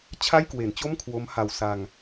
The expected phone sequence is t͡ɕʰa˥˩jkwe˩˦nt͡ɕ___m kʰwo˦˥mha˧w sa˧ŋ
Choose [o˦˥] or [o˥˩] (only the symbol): o˥˩